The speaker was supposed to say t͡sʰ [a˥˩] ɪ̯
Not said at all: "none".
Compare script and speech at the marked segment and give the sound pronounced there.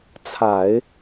a˨˩˦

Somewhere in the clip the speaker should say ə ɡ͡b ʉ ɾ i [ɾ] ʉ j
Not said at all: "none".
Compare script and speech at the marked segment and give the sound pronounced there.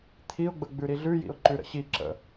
ɮ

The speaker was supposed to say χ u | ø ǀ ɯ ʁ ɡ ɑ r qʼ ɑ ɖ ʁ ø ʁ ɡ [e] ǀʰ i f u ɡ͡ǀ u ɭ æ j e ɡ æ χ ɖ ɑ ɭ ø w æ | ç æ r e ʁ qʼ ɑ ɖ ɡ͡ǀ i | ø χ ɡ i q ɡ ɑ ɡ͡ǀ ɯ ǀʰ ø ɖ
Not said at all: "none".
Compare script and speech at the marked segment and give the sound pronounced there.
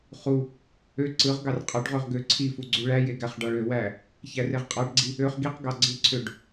ø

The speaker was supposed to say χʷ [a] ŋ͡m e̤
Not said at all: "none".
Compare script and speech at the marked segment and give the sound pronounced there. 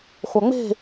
a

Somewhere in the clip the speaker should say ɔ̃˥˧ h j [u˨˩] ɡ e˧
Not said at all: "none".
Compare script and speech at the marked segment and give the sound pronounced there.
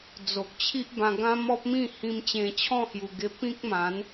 u˨˩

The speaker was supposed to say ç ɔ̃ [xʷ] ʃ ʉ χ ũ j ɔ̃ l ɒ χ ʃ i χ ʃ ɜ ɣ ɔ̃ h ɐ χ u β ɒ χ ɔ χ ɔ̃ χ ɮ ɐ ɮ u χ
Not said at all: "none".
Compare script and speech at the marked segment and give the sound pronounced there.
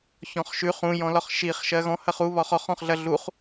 χ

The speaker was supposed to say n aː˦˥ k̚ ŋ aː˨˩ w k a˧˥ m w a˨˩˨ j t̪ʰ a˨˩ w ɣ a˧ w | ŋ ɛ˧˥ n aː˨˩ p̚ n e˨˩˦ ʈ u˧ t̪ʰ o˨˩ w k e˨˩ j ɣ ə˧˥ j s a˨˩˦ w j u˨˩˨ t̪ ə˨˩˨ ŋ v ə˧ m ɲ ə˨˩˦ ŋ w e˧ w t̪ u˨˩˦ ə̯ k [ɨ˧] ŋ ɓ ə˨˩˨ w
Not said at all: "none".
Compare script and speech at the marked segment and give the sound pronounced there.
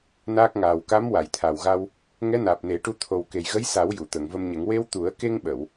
e˧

